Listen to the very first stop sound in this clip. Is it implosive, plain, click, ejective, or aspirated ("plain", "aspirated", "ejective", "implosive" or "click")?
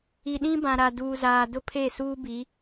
implosive